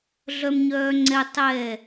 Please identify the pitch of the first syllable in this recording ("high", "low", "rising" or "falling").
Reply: high